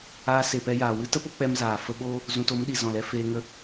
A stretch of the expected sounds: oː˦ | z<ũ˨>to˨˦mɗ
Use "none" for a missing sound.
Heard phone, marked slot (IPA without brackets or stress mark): ũ˨